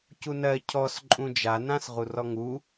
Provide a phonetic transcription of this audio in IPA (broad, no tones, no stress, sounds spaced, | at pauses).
c u n ɜ cʰ ɔ s ǃʼ ũ d͡ʒ a n ã s ʁ u r ɔ ŋ u